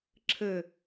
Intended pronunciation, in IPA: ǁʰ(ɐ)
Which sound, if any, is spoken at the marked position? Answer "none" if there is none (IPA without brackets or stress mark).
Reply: ə